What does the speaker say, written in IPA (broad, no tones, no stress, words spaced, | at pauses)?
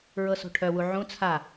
ɹɤso̤ʈʰœwu ʕũ t͡sʰa